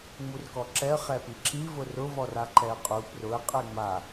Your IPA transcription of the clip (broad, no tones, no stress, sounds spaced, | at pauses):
ŋ͡m u r k ɔ ǁ ɛ ə̯ χ ɛ p i ǁ i v ʊ r ʊ v ɔ r a ǃ ɛ ə̯ qʼ u p r ʊ ə̯ qʼ ɛ ŋ͡m a